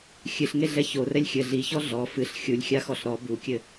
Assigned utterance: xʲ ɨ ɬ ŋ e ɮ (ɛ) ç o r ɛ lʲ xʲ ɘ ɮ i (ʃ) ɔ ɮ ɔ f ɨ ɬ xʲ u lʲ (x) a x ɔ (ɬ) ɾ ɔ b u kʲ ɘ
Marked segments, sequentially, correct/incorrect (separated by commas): correct, incorrect, incorrect, correct